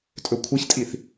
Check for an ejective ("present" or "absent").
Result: present